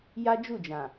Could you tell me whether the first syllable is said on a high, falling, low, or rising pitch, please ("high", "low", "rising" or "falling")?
high